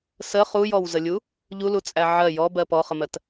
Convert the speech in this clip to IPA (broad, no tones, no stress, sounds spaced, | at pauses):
s ə χ u j ɔ w z ə lʲ u | ʎ u l u t͡sʼ æ ʕ ɜ j ɔ b ɜ p ɔ χ ə m ɜ t